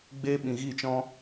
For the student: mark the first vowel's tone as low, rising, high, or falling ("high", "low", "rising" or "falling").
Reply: high